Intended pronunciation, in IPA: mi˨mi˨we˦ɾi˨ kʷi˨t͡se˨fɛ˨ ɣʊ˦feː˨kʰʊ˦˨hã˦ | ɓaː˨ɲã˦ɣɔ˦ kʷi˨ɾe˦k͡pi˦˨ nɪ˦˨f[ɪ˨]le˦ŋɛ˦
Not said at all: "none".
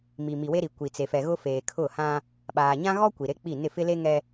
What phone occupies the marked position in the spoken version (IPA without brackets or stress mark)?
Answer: ɪ˦